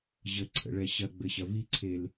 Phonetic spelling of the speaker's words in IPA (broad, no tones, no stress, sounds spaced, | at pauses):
ʑ ə ǀʰ ə̰ ɭ ɛ ɕ ɐ ɡ͡b ɘ ɕ ɐ v i ǀʰ e l